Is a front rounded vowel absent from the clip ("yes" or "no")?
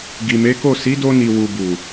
yes